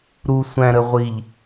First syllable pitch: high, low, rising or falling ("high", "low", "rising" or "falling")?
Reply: low